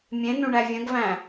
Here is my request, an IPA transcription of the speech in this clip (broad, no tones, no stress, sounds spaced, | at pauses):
mʲ ẽ n ũ ɳ æ vʲ ə̃ ɡ v æ̃